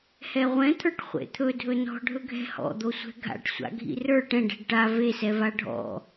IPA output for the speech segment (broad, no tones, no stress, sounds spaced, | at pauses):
h ɛ ʁʷ ɛ̃ t̪ʰ ə˞ ʈ χʷ ḛ t̪ʰ ɵ dʱ ɵ n ɔ̤ ɖʱ ɵ ɡʱ ɛ̤ h ɔ̰ d̪ o sʷ ɛ̤ ɡʱ a̰ ʈ sʷ a̰ ɡʱ ḭ r ə˞ ʈ ɛ̃ ɖ ɛ̤ ɖ ʈ a v e s ɛ v a ɖʱ ɔ̰